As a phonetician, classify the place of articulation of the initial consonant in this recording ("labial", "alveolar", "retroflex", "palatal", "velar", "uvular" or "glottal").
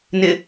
alveolar